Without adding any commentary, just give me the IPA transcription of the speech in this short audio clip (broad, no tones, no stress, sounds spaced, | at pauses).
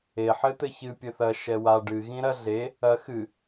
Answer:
e ħ ɘ t̪ ɘ ç ɨ pʲ ɘ θ ɐ ʃ ɛ w a ɖ ɨ ɣ ĩ ɾ ɐ ɮ e | ɐ x ɨ